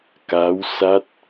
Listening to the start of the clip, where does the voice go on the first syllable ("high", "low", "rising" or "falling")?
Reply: rising